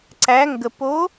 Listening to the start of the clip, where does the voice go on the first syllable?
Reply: rising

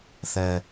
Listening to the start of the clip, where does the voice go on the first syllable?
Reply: high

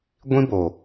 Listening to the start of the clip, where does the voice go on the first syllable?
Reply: high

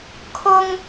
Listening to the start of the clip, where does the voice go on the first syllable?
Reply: high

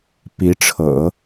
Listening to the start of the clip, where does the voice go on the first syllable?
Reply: rising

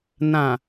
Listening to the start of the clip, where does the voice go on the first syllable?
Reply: low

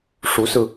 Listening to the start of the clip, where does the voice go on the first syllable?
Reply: rising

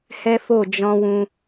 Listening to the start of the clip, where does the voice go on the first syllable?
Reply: high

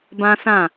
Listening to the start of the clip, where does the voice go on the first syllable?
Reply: high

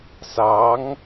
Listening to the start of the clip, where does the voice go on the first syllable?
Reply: rising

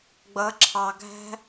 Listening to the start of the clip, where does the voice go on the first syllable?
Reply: rising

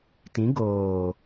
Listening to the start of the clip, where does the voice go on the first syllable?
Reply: rising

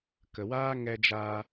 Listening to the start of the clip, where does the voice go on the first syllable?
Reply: low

